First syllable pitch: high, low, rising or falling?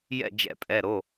falling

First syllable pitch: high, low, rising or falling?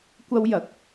high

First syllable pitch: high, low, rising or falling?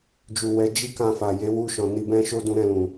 low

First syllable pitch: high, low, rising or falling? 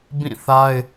falling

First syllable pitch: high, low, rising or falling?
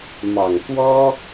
low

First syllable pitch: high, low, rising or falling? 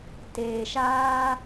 low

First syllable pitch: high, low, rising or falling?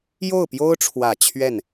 falling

